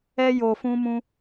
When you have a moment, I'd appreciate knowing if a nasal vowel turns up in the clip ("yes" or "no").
yes